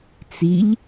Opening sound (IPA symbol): t͡s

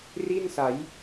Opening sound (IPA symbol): r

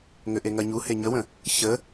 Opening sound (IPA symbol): ŋ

